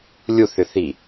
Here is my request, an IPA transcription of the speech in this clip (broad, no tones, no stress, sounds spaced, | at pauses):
lʲ u θ ʏ θ i